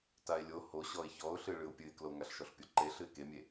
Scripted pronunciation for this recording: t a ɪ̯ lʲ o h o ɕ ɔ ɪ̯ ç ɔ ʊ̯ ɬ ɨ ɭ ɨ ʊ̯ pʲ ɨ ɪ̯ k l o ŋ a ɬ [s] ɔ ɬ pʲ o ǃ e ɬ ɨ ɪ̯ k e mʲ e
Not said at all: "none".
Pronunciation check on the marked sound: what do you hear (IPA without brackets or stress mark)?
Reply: ʃ